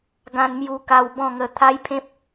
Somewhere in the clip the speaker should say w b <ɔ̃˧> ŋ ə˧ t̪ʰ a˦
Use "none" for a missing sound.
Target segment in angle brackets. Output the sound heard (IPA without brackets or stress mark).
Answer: ɔ̃˥˧